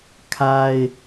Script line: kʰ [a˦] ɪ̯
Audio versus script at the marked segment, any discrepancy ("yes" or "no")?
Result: no